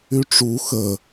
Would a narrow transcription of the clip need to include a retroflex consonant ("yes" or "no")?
yes